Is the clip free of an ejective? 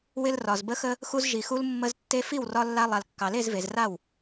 yes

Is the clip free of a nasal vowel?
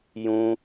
no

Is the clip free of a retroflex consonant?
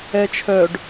no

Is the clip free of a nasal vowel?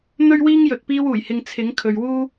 yes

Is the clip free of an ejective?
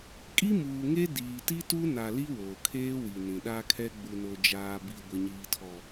no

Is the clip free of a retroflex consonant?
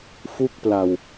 yes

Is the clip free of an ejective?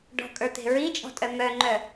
no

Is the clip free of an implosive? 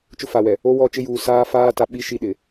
no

